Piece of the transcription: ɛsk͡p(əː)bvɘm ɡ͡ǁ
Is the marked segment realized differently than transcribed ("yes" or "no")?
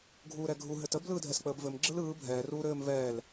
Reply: no